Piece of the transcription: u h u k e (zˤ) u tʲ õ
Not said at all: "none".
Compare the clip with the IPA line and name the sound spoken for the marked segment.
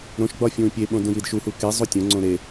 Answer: zˤ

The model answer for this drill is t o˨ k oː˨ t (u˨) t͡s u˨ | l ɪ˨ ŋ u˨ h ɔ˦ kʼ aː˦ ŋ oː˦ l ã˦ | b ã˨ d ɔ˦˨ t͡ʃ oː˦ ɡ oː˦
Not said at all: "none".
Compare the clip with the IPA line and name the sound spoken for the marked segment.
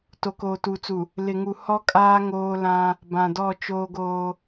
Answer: u˨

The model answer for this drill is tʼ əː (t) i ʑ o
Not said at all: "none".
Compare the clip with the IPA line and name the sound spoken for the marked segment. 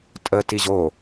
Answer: t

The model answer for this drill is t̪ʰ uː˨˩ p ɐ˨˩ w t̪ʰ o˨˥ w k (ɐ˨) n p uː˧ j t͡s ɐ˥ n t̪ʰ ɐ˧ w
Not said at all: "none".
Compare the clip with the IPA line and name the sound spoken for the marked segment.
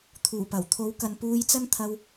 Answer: ɐ˨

